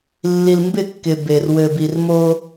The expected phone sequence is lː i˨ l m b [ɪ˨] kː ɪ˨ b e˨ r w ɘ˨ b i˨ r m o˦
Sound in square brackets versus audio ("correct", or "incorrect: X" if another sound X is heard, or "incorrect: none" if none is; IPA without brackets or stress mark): incorrect: ɪ˦˨